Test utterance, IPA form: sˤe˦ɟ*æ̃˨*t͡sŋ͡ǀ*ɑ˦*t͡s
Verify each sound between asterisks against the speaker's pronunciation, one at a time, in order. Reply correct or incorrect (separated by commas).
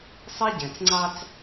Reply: correct, correct